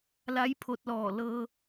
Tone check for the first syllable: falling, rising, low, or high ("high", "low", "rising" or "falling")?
rising